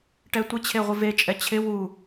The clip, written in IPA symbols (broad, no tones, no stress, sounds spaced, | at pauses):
ʈ ɛ tʷ ɪ t͡ɕʰ e ʁʷ ɪ v e t͡ʃʼ ɛ t͡ɕʰ ɪ w u